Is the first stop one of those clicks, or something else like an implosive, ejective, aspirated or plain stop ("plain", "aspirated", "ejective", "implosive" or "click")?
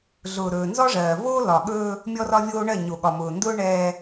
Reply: implosive